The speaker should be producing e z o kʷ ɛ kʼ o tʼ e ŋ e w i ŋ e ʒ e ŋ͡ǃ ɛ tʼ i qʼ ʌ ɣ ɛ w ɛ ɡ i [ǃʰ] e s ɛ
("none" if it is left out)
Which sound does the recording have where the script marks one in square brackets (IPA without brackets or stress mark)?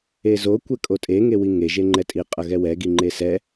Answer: ŋ͡ǃ